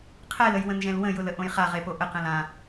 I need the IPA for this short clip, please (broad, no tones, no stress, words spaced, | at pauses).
qʰɛləjwə̃nʒɛ̃l wə̃jʊlə ʔõjχaʁepo ʔəqɛ̃l ã